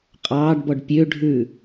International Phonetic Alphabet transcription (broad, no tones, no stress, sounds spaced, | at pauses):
qʼ ɑː ɖ b ɔ ɖ pʲ ø ɖʱ ʉ